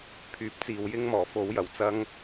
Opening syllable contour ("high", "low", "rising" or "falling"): low